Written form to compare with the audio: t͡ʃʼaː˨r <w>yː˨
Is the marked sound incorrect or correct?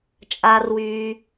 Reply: correct